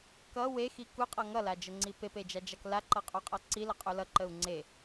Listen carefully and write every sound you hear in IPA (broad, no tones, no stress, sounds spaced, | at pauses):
k ʌ w e x i k u qʼ ʌ ŋ ʌ l a d͡ʒ ə ŋ͡ǀ i p e p e d͡ʒ a d͡ʒ a k l a ǃ ʌ qʼ u qʼ ʌ ǀ i l ʌ qʼ u l ʌ ǃ ə u̯ ŋ͡ǀ e